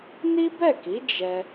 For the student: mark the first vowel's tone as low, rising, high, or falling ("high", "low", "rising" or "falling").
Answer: high